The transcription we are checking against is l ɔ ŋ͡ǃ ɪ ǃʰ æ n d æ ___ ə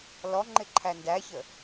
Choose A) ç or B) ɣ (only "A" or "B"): A